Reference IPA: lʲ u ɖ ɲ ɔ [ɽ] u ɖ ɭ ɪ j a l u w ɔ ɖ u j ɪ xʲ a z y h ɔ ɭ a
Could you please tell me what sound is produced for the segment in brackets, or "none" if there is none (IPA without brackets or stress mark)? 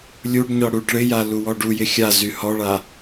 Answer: ɽ